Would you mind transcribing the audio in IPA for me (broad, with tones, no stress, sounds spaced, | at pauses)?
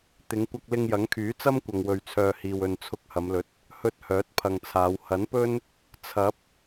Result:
t̪ ɪ˨˧ ŋ kʷ ɐ˧ k̚ l ɪ˧ ŋ j ɐ˨˥ ŋ kʰ yː˨˥ t͡s ɐ˥ m kʷ ɐ˨ ŋ w ɵ˨ ɥ t͡sʰ œː˨ h iː˨ w ɵ˨ n t͡sʰ ʊ˨˥ k̚ h ɐ˨˧ m l ɵ˨ t̚ | h ɵ˧ t̚ h œː˨˥ t̚ pʰ ɐ˨ ŋ t͡sʰ aː˨˧ w h ɐ˨˥ n p ɵ˥ n | t͡sʰ ɐ˨˥ p̚